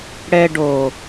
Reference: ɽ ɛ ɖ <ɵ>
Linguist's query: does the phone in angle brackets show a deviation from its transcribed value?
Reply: yes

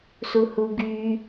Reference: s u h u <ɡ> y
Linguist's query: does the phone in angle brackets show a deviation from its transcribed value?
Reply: no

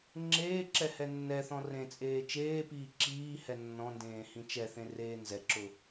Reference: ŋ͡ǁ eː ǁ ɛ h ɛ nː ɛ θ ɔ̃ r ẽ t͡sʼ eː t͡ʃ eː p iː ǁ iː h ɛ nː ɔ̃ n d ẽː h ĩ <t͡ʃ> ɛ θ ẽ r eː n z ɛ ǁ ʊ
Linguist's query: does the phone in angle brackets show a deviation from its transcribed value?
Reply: no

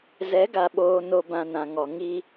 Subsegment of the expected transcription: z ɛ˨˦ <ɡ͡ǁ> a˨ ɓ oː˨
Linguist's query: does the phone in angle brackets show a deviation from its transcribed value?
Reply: yes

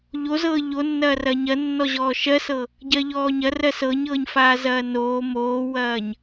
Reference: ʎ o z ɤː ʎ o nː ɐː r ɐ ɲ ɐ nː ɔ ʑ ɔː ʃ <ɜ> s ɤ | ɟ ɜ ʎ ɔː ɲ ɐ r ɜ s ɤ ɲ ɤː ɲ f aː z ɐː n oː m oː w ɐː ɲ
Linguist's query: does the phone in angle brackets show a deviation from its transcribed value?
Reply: no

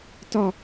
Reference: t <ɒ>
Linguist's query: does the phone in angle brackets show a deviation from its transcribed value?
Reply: no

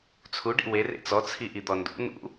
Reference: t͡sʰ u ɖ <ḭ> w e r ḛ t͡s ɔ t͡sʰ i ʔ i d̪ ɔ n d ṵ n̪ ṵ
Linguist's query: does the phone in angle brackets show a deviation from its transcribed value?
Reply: no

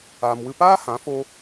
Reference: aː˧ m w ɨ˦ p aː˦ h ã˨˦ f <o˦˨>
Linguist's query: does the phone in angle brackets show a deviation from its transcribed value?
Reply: yes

